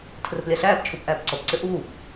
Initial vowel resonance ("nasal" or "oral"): oral